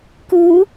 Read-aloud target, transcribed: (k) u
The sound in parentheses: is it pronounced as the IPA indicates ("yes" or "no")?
yes